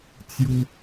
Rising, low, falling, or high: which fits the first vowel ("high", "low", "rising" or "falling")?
high